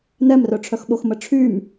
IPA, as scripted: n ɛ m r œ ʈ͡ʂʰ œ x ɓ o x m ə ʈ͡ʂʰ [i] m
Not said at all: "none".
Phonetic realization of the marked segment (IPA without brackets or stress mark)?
y